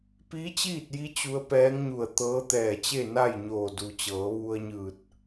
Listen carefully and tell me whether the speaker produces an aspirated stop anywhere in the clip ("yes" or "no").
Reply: no